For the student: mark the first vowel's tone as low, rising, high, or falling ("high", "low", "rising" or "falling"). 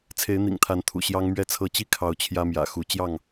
rising